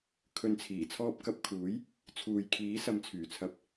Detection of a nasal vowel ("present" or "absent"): absent